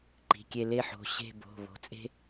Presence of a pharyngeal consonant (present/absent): present